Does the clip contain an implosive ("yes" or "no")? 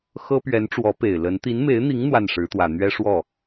no